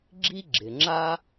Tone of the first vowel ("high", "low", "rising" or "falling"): high